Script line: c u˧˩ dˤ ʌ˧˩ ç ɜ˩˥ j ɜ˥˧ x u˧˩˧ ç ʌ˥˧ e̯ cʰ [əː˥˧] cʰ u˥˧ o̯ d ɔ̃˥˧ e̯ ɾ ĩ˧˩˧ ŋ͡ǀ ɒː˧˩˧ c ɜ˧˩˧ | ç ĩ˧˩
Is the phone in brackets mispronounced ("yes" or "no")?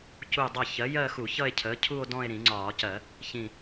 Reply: yes